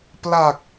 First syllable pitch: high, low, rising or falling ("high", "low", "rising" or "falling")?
low